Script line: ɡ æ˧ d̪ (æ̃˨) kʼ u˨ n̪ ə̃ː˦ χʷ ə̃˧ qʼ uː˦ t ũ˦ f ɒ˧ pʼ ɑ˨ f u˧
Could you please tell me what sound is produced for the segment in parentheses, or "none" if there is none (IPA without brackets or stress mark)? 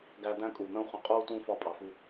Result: æ̃˦